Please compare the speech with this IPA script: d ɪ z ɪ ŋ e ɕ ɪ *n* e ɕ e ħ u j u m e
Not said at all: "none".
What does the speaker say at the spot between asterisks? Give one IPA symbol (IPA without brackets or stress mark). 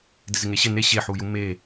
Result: n